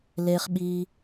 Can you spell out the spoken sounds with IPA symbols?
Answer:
l e˦ χ ɓ i˦

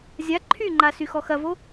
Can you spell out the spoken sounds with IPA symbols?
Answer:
zʲ a ǃʰ y ŋ͡ǃ a s y x ɔ x ɐ v o

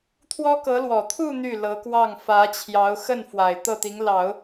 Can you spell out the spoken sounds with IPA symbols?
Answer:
t̪ʰ w ɔ˥ k ɤ˧˥ l w ɔ˨˩ t̪ʰ u˥˧ n̪ y˥˩ l ɤ˧˥ k w ɑ˥˩ ŋ f ä˧˥ t͡ɕʰ j ɑ˧˥ ʊ̯ x ə˥˩ n f w a˨˩ ɪ̯ t̪ ɤ˥˩ t̪ i˧˥ ŋ l ɑ˨˩˦ ʊ̯

